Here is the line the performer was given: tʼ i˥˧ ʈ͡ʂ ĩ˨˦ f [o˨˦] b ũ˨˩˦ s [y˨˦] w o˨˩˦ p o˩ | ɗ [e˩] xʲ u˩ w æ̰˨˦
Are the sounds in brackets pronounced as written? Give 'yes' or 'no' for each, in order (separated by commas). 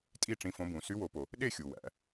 no, yes, no